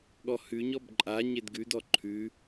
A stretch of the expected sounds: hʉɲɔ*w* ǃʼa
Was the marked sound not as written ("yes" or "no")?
yes